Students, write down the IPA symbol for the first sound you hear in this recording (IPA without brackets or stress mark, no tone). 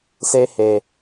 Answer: s